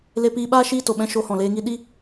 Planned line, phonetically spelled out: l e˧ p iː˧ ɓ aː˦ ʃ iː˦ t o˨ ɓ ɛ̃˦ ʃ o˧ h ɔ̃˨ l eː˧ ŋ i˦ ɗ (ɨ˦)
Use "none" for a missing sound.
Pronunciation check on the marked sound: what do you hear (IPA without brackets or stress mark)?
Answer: i˦